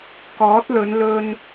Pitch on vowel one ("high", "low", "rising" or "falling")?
rising